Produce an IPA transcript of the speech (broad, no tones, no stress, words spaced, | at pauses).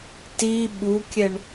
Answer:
ti ɓukʲɛɳ